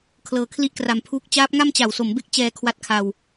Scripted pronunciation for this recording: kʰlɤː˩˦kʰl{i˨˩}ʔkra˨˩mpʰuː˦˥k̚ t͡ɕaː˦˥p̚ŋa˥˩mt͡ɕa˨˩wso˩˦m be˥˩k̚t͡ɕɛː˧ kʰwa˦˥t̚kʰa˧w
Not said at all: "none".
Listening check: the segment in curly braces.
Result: i˦˥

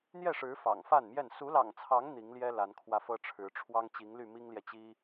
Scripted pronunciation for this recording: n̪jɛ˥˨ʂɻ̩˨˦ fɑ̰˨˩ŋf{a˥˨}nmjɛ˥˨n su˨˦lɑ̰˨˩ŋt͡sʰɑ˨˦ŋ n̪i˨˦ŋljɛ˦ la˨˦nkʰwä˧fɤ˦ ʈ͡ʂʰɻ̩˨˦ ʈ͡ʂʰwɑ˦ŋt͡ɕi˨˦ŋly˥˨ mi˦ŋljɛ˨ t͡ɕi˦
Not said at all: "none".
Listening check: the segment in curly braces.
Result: a˥˨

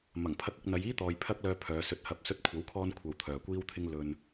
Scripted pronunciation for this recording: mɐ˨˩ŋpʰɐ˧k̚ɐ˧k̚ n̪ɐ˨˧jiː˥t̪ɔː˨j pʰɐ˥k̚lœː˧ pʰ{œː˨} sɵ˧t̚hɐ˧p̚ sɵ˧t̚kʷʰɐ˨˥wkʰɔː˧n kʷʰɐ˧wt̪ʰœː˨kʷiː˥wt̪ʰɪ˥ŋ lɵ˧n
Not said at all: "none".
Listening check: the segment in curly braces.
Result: œː˨˧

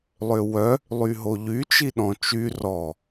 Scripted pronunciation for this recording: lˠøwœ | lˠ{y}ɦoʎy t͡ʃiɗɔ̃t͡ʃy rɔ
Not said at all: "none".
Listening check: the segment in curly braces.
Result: y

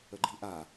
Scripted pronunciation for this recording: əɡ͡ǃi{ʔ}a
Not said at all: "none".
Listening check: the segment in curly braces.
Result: ʔ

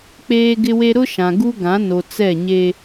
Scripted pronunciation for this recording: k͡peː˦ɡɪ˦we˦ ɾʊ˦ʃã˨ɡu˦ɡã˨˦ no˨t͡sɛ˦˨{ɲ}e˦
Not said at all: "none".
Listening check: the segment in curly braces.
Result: ɲ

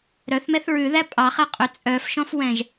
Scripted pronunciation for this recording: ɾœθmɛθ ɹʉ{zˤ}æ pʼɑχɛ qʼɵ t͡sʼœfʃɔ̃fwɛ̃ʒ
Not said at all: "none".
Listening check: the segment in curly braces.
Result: ð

